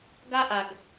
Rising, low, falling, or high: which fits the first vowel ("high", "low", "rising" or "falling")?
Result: high